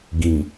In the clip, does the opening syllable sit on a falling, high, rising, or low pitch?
low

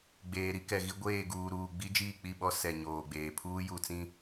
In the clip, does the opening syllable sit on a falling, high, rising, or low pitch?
low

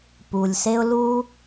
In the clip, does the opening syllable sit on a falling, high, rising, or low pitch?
low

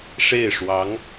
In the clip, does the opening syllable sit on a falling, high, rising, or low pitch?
falling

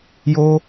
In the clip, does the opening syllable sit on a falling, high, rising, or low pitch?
high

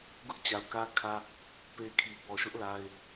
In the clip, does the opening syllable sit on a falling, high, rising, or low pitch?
high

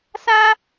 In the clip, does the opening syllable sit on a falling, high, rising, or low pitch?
high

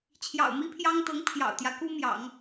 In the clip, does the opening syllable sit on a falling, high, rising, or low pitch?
low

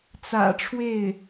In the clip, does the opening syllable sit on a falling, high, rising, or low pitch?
low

